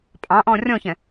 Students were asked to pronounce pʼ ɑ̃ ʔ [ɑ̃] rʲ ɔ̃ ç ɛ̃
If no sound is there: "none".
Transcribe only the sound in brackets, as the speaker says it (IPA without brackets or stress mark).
ɔ̃